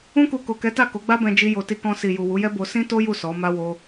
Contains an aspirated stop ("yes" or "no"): no